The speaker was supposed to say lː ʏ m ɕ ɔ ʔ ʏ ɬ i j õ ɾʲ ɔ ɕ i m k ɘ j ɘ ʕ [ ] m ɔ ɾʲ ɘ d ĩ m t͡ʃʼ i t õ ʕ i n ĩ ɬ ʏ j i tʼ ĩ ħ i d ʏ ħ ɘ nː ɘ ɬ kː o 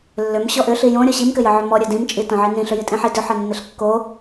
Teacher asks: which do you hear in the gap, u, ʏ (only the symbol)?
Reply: ʏ